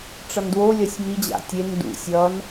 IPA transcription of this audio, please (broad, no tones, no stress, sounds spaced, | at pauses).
ʈ͡ʂ ʌ n d w o lʲ ʌ sʲ m i d͡ʑ a̰ tʲ e n d ṵ sʲ ʌ n